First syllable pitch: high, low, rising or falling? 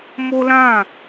high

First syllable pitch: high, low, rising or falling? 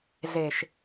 low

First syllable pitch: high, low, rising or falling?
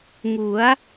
rising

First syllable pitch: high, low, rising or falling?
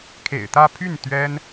low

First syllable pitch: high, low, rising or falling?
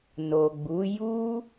low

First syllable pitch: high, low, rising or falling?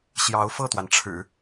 rising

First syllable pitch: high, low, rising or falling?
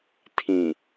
low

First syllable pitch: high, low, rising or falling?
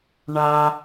high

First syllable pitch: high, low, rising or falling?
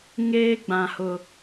high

